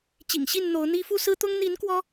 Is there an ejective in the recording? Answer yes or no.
no